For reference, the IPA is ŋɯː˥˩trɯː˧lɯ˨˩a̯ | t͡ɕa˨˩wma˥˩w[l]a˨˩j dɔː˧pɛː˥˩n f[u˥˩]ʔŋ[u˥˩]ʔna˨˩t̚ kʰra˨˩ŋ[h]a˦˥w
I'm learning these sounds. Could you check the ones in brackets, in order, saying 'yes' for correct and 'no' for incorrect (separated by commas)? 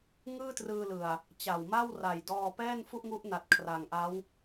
no, yes, no, no